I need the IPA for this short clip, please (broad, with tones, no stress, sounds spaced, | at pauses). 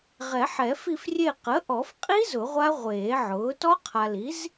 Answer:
ʁ ɛ˨˩˦ ħ ɛ˨˩˦ f i˦˨ f rʲ e˦˨ q ə˩˥ ʔ ɔ˨˩˦ f qʼ i˦˥ z ʊ˨˩˦ ʁʷ a˦˥ ʁʷ eː˨˩˦ ʕ ʊː˩˥ t ɔ˦˥ qʰ a˨ l i˩˥ z